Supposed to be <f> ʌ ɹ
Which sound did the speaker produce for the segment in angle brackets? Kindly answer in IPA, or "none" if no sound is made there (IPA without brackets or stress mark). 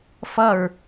f